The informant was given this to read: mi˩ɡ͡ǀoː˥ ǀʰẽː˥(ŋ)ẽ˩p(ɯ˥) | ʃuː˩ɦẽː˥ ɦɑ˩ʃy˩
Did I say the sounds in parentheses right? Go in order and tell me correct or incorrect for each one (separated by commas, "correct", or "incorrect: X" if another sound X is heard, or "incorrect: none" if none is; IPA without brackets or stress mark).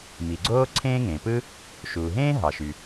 correct, correct